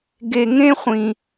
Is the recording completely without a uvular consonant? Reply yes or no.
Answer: no